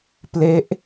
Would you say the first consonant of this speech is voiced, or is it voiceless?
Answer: voiceless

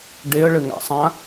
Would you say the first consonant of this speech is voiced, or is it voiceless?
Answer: voiced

